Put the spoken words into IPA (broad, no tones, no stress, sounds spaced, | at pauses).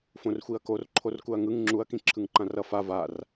f õ r xʷ i ɐ̯ k o r ǃʰ o r k u ɐ̯ ŋ ɯ ŋ ŋ͡ǁ u ɐ̯ k ĩ ǁʰ ɯ ŋ ǃ ã r ʌ f a v a r